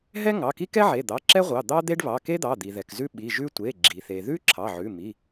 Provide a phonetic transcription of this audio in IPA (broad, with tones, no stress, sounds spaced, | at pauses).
ɦ ɛ˥ ŋ ɑ˩˧˩ k i˥ k ɛ˥ ʕ e˩˧˩ d̪ ɑ˩˧˩ ǁ ɛ˥ ʁʷ ɑ˩˧˩ d̪ ɑ˥ d̪ e˥ ɖ β ɑ˩˧˩ k e˥ d̪ ɑ˩˧˩ d̪ i˩ ð ɛ˩ k z ʉ˥ ɓ i˩˧˩ ʒ ʉ˥ tʷ e˩˧˩ ɡ͡ǁ i˩ θ e˩ ð ʉ˥ ǁʰ ɑ˩˧˩ ʕ ʉ˩˧˩ m i˩˧˩